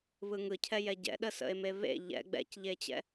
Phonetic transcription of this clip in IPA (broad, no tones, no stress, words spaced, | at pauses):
βɯŋɯcʰɛ jɛɟɛ̰ɗə sə̰e̯meβḛ ʎɛ̰ ɡ͡bɛ̰cʎet͡ɕɛ̰